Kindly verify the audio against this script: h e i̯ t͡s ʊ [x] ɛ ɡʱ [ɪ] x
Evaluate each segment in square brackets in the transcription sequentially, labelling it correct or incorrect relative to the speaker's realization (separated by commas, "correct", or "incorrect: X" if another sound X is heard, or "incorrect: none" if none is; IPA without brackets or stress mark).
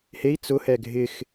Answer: incorrect: h, correct